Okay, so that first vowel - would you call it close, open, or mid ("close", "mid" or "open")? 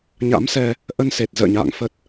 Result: open